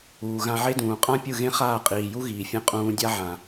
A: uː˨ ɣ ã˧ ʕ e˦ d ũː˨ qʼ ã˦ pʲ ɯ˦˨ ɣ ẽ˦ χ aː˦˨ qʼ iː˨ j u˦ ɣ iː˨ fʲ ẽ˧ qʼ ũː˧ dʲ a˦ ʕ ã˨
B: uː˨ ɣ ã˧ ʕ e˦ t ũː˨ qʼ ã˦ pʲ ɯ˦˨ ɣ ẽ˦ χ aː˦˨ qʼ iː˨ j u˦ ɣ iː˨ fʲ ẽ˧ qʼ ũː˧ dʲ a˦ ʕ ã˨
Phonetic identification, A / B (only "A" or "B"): A